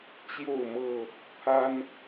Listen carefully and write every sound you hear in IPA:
t͡ɕjo˥˨ʊ̯mɤ˥˨ | pʰa˦n

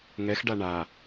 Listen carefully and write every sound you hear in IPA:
ŋɛxɖa ɳa

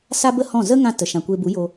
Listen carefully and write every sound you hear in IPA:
sa˦bə˦hɔ̃˦˨ zə˦ŋã˧ tə˨ ʃã˨kʷe˧bu˨˦jo˧

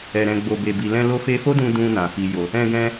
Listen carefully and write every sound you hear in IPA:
ɛ˨ɾɛ̃˨ ɡ͡bo˨be˨bi˨lɛ̃˧ lo˧fe˧fo˦dũ˧ dũ˧ nã˨fi˨jo˨ | ɛ̃˧ɡɛ̃˧

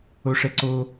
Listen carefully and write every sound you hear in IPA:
oʂɛǀo

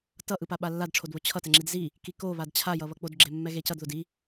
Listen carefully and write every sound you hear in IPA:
tʌʔɯpa ɓalːadʈ͡ʂʰodβo t͡ɕʰʌ tɛŋ͡ǁidzi | kiko βadt͡ɕʰa jʌβʌk͡podɡ͡ǁe mːɛɣecʌd ðodi

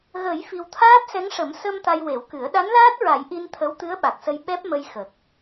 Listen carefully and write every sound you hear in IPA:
ɣə˨˩˦j fi˧w t̪ʰaː˦˥p̚sɛ˧˥ŋʂə˨˩˦m sə˧m t̪a˧jwe˨˩˦wkɨ˨˩˦ə̯ ɗa˧˥nlaː˦˥t̚ɹa˨˩˦j ʔi˧n t̪ʰə˧˥wt̪ɨ˧˥ə̯ɓa˨˩k̚sə˧j ɓɛ˦˥p̚mə˧jxə˨˩k̚

